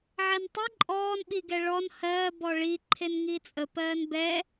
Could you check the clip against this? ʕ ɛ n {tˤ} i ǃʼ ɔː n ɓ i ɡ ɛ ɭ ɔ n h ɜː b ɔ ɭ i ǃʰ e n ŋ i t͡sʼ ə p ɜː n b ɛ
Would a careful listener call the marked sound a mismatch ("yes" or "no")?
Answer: no